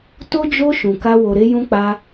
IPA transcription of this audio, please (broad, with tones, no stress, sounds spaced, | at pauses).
t o˦ d͡ʒ o˦ ʃ ũ˧ k a˦ w o˧ ɾ e˦ j ũ˦ k͡p a˦